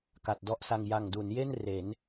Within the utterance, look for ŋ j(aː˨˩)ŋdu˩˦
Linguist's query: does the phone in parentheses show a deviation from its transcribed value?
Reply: yes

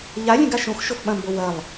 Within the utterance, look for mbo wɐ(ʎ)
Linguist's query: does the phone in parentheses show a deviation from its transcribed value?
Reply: yes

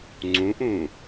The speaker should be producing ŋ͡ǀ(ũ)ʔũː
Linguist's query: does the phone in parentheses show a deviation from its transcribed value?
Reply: no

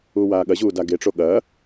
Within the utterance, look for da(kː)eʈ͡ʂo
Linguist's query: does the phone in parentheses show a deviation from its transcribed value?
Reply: yes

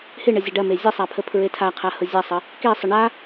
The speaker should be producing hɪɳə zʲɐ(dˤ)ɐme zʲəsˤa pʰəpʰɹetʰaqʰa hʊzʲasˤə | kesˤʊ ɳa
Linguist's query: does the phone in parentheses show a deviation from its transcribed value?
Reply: yes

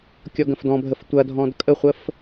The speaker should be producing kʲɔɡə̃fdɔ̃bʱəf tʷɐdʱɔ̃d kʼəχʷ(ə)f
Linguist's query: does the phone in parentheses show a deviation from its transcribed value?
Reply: no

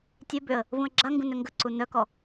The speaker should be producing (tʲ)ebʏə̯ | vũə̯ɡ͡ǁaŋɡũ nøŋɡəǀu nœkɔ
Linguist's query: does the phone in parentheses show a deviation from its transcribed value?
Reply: no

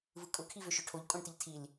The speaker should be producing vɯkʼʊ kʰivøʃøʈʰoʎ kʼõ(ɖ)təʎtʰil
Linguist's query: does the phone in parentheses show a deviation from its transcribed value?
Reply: no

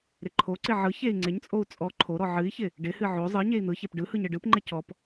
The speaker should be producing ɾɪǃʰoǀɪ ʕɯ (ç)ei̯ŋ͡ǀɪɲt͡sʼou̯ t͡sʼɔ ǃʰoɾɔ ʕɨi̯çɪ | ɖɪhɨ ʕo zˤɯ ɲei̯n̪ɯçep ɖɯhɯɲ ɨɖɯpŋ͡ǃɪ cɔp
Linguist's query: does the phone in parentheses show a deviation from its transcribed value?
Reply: no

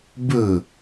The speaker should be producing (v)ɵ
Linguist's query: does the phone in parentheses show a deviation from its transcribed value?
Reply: yes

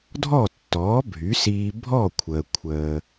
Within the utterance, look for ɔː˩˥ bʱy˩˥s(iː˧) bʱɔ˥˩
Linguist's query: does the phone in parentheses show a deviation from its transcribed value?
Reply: no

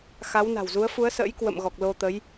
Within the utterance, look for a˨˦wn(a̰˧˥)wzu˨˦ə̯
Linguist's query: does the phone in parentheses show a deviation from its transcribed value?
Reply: yes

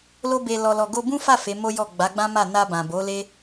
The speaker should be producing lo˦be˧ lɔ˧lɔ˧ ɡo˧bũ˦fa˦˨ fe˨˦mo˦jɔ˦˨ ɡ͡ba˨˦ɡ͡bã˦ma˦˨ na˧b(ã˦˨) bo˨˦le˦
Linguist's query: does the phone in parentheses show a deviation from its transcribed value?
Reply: yes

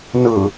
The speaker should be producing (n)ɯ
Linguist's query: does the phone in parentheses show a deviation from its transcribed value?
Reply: no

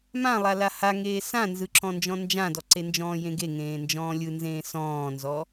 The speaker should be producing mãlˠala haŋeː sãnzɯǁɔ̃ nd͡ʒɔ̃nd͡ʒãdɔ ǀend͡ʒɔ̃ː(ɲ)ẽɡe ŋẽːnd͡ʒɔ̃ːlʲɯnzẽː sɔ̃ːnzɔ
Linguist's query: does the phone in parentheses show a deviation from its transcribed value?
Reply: yes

